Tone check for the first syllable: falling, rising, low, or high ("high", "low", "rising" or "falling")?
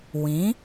rising